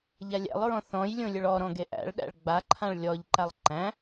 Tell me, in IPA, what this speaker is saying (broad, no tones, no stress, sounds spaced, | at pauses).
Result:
ʎ a lʲ æ̰ lˠ ɹ ɔ̃ θ ɔ̃ j lʲ õ lʲ ɵ ɭ ɔ ɾ ɔ̃ ɡ e ʔ æ̰ ɭ ɗ æ̰ ɭ ɡ͡b a ǃʰ ã ɭ lʲ ɔ ʎ ǃ a lˠ ǃ æ̃